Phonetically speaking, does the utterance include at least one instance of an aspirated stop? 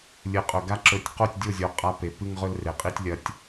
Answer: no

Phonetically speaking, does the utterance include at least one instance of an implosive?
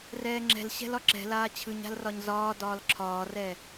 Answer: no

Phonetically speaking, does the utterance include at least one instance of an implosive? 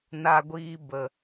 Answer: no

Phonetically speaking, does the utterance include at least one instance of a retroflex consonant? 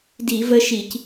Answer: no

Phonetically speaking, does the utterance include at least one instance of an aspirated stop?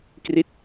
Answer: no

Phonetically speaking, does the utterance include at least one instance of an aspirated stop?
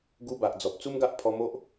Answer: yes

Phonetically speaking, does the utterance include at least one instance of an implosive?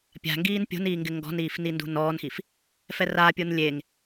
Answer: no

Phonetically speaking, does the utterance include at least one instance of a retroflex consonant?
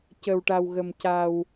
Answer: yes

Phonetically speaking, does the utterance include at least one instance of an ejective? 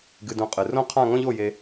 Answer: yes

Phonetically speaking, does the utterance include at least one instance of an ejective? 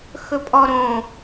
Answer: yes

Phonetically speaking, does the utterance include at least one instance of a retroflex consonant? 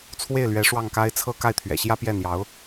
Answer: yes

